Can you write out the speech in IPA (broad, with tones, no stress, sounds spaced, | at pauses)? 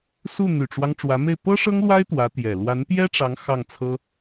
s u˥˩ n̪ y˨˩ ʈ͡ʂ w ɑ˦ ŋ ʈ͡ʂ w ä˧˥ m e˥˩ ɪ̯ p ɤ˥ ʂ ɤ˥ ŋ l w a˥ ɪ̯ t̪ w ä˧˥ t̪ j ɛ˨˩ l w a˧˥ n p j ɛ˥ ʈ͡ʂ ɑ˧˥ ŋ x ɑ˥˩ ŋ t͡sʰ ɤ˥